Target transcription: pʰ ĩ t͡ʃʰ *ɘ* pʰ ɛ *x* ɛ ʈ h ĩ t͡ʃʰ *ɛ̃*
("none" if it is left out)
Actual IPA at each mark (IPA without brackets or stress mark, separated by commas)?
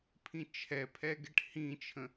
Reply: ɛ, ɡ, ə̃